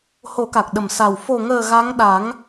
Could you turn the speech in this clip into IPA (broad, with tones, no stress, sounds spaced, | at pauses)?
h o˨˩˦ k a˨˩ k̚ ɗ ə˨˩ m s a˨˩ w f o˨˩ ŋ əː˨˩ ɣ a˧˥ ŋ ɗ a˨˩˦ ŋ